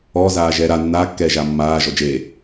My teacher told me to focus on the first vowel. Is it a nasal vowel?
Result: no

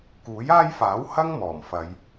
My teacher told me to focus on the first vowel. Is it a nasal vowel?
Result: no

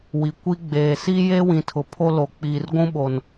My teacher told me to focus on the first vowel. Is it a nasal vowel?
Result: no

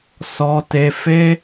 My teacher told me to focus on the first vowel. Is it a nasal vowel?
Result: no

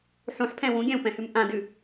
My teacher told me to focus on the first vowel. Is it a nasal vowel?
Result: yes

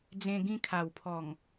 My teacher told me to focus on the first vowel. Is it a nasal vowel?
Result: yes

